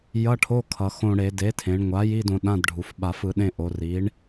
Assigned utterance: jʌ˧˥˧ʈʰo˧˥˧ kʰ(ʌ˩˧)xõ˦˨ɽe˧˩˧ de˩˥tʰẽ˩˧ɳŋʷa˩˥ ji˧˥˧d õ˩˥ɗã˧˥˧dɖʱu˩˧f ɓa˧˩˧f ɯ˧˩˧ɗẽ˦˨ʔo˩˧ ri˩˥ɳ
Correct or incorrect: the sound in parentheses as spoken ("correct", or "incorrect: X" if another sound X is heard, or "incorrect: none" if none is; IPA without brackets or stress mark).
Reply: correct